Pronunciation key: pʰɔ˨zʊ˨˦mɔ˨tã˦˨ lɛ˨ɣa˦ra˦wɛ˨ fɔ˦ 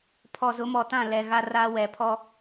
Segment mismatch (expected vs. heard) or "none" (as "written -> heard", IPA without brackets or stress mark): f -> pʰ